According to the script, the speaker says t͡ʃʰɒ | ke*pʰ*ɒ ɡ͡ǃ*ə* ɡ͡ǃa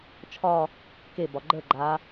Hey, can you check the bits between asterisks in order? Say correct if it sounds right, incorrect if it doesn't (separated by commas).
incorrect, correct